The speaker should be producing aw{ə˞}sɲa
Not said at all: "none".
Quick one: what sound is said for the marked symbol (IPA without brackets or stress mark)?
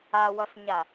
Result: ʌ